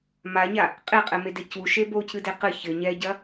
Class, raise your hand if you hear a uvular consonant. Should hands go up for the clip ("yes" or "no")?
yes